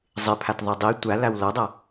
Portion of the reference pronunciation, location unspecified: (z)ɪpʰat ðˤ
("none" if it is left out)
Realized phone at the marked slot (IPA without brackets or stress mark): zˤ